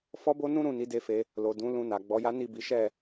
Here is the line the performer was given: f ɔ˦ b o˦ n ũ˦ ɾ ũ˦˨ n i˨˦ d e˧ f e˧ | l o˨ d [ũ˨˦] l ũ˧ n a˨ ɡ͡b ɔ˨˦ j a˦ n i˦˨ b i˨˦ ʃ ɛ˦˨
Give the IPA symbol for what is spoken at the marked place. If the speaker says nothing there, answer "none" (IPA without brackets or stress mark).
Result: ũ˨˦